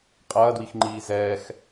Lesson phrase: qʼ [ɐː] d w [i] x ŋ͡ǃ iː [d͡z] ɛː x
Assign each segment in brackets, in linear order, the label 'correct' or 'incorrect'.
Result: correct, correct, incorrect

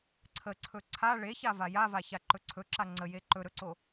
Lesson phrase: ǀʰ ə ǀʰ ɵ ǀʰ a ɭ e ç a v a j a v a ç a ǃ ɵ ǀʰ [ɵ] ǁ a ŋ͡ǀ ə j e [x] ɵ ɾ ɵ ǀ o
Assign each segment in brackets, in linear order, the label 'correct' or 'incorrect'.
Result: correct, incorrect

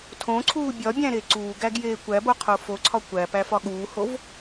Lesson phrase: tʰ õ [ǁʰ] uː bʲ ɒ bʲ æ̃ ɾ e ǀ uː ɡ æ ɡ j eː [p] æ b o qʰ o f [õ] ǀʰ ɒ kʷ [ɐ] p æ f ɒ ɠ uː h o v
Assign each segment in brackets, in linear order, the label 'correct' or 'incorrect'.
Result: incorrect, incorrect, incorrect, incorrect

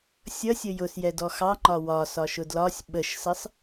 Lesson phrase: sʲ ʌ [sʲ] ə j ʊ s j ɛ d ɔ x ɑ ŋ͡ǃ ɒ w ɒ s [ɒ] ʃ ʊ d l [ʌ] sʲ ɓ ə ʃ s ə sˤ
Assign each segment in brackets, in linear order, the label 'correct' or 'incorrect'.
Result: correct, correct, incorrect

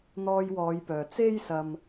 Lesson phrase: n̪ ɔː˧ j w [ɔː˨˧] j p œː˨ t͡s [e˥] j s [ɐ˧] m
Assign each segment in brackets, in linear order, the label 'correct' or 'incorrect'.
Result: correct, correct, correct

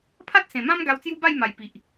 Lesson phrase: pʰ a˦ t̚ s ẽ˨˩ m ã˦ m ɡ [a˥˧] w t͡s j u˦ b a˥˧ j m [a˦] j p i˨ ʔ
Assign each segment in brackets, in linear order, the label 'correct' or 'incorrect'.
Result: incorrect, incorrect

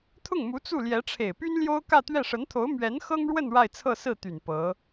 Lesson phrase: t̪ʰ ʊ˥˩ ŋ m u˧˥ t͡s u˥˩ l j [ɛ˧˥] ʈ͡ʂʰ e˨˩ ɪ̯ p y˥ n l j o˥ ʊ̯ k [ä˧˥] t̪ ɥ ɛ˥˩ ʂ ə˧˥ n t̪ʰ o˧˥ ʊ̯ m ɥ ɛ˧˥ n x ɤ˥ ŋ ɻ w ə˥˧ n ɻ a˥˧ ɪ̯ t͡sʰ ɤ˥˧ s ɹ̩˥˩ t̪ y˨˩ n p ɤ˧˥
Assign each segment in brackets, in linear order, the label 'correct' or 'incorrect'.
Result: correct, incorrect

